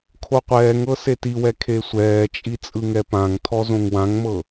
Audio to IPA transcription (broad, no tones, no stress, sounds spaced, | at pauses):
kʰ o qʷ ɛː ŋ ɤ s e t i w ɛ kʰ e sʷ ɛː t͡ʃʼ i t͡sʼ ɯ ŋ ɛ p ã ŋ tʰ ɔ z õ ŋ w ã ŋ m ɤ